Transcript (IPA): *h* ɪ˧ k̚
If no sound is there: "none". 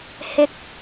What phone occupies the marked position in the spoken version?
h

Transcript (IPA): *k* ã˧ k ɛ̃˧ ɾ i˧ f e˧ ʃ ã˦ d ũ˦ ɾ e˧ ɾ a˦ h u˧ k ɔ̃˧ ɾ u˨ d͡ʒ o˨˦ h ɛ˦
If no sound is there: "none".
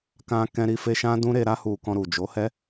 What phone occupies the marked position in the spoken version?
k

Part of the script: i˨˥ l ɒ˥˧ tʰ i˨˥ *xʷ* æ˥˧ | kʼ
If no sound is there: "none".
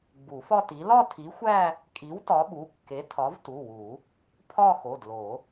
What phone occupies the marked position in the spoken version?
xʷ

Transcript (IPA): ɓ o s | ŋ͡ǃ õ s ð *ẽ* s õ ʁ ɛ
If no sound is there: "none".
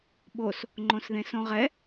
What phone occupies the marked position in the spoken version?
ẽ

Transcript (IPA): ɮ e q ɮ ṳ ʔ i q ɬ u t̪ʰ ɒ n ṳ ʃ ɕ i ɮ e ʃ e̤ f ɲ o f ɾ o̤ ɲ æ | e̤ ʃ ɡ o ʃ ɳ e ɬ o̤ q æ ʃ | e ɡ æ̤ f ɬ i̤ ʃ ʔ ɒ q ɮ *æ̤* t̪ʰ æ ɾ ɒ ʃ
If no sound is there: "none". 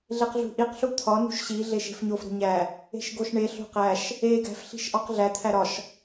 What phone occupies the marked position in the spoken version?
æ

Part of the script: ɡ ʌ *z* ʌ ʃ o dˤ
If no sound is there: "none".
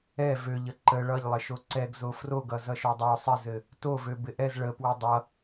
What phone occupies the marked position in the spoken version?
z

